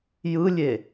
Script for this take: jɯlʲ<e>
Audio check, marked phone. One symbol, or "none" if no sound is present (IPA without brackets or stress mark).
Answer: e